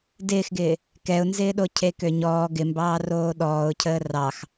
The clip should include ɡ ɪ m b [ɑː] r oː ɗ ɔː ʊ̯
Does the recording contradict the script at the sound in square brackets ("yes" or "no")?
no